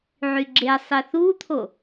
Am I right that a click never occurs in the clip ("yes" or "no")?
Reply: no